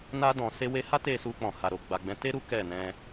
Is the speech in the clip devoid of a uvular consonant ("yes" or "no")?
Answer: yes